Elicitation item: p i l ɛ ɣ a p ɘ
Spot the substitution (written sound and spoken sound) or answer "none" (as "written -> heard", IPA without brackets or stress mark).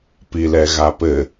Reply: none